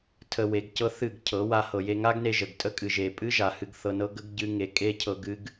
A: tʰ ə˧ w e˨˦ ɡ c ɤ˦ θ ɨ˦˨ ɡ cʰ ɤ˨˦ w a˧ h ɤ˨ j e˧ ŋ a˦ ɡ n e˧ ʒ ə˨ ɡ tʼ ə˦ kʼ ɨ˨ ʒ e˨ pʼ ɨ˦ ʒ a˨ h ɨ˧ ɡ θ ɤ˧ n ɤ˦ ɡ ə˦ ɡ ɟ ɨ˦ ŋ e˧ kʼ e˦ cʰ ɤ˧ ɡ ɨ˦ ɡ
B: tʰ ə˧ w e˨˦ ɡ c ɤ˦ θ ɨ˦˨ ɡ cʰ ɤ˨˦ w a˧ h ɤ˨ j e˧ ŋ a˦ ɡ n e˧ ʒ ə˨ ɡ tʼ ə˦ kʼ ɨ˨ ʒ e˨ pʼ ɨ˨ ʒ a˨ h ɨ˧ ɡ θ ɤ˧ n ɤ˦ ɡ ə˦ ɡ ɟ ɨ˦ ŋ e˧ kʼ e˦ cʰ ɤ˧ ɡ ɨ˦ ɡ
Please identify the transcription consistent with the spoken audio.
A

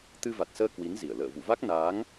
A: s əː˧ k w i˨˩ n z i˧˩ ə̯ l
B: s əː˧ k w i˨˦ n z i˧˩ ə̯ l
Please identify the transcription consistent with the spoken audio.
B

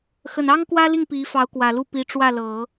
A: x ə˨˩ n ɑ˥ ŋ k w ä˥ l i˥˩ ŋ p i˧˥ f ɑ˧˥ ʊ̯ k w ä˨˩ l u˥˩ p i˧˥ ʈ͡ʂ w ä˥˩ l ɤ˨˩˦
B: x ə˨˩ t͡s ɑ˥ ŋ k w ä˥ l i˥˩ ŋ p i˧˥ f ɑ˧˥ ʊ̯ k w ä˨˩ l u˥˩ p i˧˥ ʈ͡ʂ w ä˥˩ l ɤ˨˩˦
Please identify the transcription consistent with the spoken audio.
A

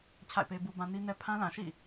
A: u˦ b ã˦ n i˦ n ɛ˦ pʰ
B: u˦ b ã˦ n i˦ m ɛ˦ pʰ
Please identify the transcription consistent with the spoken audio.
A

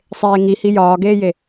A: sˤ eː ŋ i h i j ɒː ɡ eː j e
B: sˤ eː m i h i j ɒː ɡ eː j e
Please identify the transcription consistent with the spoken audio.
A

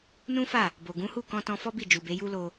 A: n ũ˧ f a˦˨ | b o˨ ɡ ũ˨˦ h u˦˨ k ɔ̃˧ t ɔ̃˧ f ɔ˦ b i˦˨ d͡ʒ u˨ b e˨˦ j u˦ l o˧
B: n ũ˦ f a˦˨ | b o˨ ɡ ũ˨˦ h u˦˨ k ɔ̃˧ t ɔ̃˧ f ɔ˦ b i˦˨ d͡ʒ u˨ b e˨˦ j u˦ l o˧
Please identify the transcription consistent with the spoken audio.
B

